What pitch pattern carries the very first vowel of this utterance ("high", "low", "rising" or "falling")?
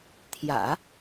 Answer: low